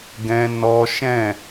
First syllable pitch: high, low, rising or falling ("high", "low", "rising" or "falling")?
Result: high